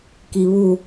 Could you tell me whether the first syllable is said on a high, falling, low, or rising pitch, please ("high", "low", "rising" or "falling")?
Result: low